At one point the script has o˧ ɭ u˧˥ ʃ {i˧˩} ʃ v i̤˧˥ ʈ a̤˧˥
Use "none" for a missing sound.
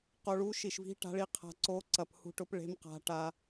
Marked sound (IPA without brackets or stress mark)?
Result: i˧˩